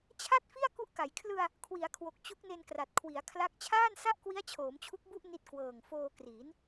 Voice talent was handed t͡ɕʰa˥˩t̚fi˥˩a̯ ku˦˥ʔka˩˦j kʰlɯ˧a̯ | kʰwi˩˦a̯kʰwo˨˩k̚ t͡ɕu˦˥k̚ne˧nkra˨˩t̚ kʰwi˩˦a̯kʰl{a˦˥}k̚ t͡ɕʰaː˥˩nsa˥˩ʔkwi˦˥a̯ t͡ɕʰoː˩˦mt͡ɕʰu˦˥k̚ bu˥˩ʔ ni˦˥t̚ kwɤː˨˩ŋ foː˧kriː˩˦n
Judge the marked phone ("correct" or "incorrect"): correct